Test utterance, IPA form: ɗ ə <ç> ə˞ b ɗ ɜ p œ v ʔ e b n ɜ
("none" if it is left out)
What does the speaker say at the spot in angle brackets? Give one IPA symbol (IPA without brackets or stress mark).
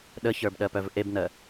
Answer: ç